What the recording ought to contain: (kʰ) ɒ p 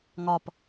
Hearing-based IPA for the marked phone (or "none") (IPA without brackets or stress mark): ŋ